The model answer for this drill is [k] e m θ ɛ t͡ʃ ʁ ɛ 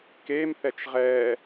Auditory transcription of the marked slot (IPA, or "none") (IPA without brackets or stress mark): k